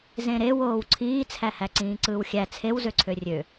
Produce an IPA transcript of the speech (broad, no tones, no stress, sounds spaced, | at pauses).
z ẽ ɾ e w oː w ǀʰ iː t͡sʰ æ h æ ǀ ĩː ǀ ɯː w xʲ æ t͡sʰ e w z ø ǀʰ ø rʲ ø